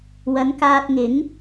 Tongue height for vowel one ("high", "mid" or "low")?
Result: low